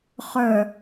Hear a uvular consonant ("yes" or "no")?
yes